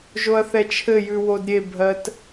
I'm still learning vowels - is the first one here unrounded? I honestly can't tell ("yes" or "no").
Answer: no